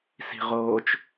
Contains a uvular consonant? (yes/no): yes